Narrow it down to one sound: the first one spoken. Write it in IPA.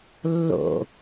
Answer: lː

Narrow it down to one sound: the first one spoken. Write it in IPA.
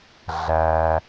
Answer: ɮ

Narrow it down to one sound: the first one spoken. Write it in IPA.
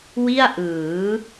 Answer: w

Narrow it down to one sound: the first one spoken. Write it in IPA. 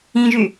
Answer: ĩ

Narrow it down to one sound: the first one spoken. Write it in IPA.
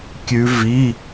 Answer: kʲ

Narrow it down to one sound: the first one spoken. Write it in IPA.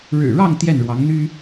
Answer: ɻ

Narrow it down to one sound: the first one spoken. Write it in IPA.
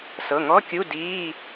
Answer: s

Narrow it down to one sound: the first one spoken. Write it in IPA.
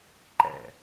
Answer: ǃ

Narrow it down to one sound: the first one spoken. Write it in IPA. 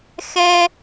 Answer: x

